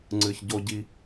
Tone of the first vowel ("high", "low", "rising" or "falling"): low